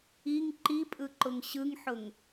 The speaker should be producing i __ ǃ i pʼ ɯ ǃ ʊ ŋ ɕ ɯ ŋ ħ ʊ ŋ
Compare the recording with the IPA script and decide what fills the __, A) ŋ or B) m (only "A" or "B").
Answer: A